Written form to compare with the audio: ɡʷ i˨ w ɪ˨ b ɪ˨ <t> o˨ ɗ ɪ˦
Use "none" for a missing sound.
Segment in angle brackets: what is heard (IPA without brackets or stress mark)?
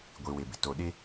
t